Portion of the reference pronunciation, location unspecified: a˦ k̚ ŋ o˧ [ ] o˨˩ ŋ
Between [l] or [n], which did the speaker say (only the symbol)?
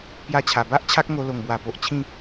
l